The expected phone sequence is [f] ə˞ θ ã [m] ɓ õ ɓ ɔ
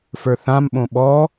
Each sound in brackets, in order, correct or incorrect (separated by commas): correct, correct